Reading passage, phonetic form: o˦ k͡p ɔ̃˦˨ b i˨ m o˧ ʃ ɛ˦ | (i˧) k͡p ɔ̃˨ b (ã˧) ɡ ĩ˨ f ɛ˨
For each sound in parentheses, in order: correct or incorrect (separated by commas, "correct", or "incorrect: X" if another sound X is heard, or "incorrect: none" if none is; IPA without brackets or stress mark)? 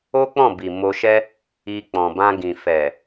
correct, correct